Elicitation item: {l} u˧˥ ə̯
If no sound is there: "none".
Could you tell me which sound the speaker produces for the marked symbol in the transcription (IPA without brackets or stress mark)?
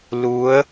l